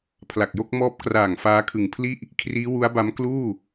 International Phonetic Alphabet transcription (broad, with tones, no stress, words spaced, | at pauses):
pʰla˨˩k̚jo˥˩k̚mɔː˦˥p̚ kraː˨˩ŋ faː˦˥kʰɯ˨˩ŋpʰli˥˩ʔ | kʰriː˦˥wu˦˥a̯ba˦˥m kluː˥˩